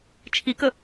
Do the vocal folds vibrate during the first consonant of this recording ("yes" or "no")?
no